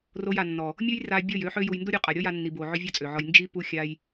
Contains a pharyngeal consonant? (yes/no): yes